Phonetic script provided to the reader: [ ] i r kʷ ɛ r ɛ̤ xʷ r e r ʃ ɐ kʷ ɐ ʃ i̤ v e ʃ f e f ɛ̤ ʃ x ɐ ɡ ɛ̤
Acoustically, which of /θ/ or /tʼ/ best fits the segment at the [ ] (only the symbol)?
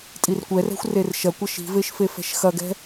tʼ